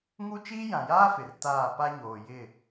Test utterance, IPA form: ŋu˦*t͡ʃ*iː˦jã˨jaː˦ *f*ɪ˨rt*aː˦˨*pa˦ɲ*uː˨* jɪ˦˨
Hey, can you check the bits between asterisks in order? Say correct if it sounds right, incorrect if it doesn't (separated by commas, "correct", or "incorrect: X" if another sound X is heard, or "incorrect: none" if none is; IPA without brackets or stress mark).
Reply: correct, correct, correct, incorrect: oː˨